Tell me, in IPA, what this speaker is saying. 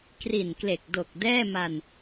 k r i˨˩ n k l e˨˩ k̚ d o˨˩ k̚ d ɛː˥˩ m a˧ n

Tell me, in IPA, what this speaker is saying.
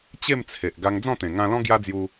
t͡ɕ e˥˧ m t͡sʰ e˨ ʔ ɡ a˧ ŋ d͡z ɔ̃˥˧ t̪ ẽ˨˩ ŋ ã˧ l ɔ̃˦ ɡ j a˦ d͡z j u˧

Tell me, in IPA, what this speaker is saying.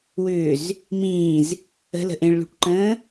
w ʏː z | m ĩː z | ə̤ l ə̤ ʔ ẽ ɭ l ṳ ʈ ǃ ə̃ː

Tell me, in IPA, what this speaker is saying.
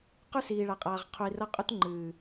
q ʉ˦ s iː˨ ɭ a˨ qʼ aː˨ ʁ qʰ u˨ i̯ r ɐ˦ qʼ ɵ˦ t ŋ͡ǃ ɨː˨

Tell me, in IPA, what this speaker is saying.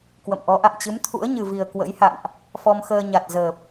k w ə̰˧˨ m ʔ ɔ˨˦ ʔ a̰˧˨ m t͡ɕ ɨ˨˦ m t̪ʰ ṵ˧˥ ə̯ ɲ ɨ˨˩ v i˨˩ ə̯ k w ə̰˧˥ j h a̰˧˨ n ʔ | f ɔ˧ m x əː˧ ɲ a˨˩ t̚ z əː˨˩ p̚

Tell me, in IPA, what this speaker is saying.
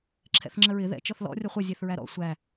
ǁʰ ɛ̰ θ ŋ͡ǁ ə ɹ ɪ ð ɛ̰ t͡ʃ ɔ θ l ɔ̰ rʲ ʌ χʷ ʌ zʲ ɛ θ ɹ æ ɾ ɔ̰ sʷ æ

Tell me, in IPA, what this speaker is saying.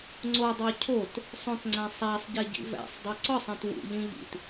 ŋ͡ǀ o dˤ o cʰ o t | sˤ õ t ŋ͡ǀ æ̃ sˤ æ sˤ ɟ e ɟ ḭ v æ̰ sˤ dˤ u ǀ ɒ sˤ ĩ t w ṵ ʎ ĩ ʎ ḭ t

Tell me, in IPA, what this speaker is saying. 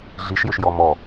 ɮ i ʃ j ʏ ʃ j ɔ m ɔ

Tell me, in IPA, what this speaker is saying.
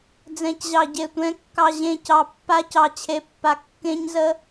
d͡z ɛ̃˨ c ʑ ɑ˨ ɟ e˨ tʷ ɛ̃˨˦ kː ɑ˨ ʑ ẽ˨ c ɑ˨ pː a˦ c ɑ˨ t͡ɕʰ e˨˦ pː a˨ kː ẽ˦ ɲ z ə˦

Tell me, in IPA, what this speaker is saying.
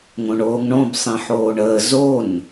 ŋ õ ɳ oː ŋ ɳ õ b sˤ ĩ ħ oː ɳ əː z o n

